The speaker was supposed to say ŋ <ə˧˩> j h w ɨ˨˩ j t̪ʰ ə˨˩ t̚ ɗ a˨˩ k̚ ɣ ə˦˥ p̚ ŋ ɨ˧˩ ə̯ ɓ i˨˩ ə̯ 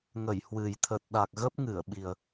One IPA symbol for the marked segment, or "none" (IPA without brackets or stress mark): ə˧˩